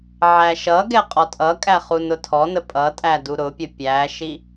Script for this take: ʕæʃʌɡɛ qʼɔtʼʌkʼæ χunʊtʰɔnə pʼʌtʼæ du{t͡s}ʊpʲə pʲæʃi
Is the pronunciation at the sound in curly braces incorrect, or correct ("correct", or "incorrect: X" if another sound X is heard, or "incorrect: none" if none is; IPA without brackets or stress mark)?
incorrect: ɾ